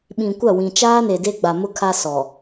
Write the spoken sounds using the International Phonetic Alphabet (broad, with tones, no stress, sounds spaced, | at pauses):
ɓ ĩ˨ kʷ a˦˨ w ĩ˨ t͡ʃ aː˦ n e˨ d e˦ ɡ͡b a˨ m ʊ˦ kʰ a˦ s ɔ˨